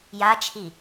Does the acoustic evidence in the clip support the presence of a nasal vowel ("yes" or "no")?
no